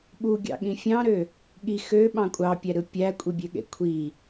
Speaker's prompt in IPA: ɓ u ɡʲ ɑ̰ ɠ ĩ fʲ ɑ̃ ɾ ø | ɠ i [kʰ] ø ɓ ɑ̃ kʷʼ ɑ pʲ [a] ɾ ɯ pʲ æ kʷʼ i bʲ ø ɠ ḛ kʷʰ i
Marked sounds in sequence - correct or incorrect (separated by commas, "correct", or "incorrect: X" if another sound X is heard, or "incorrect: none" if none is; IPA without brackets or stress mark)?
incorrect: x, incorrect: æ